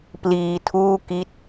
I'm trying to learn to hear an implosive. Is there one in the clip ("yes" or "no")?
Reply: no